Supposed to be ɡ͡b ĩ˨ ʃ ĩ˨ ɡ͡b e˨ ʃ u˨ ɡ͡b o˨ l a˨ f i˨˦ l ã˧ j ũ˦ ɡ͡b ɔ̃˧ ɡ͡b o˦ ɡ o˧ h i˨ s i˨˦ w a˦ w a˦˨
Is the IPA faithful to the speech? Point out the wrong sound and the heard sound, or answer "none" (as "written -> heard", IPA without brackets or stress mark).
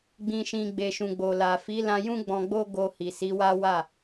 u˨ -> ũ˨